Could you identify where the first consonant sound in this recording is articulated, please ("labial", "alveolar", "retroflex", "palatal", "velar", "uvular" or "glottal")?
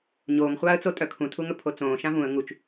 palatal